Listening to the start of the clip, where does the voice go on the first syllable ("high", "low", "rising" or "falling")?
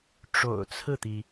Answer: low